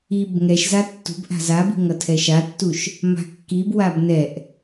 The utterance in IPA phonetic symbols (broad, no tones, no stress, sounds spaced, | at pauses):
i b ŋ ɛ ʃ z a tː ṳ b ʔ a̤ z a b i̤ ŋ ʌ tʰ ɛ ʃ a tː u ʃ | m a̤ kː i b w a b n ɛ ʔ